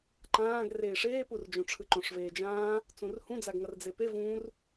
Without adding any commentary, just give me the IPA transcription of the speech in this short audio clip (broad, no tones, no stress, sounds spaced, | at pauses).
ǃ ãː ɡ r eː ʂ eː p u r d͡ʒ õ ʈ͡ʂʰ ɯ ǃ õ ʂ v eː d͡ʒ ãː | t͡s ũ r h ũ d͡z a ɡ ŋ ʌ r d͡z e p e v ũ r